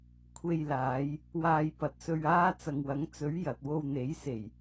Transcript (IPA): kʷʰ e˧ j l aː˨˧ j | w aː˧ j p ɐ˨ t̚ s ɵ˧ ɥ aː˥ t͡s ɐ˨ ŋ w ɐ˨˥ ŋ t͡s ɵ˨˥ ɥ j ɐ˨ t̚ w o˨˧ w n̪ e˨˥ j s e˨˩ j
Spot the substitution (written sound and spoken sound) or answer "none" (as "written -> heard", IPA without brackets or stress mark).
o˨˧ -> o˧